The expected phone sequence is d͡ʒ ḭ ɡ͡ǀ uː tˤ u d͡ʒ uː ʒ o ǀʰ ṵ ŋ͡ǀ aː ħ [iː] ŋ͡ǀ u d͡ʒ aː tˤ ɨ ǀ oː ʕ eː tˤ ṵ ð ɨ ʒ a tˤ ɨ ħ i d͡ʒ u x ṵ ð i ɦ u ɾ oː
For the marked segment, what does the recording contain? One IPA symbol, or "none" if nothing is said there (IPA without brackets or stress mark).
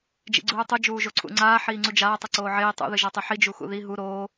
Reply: iː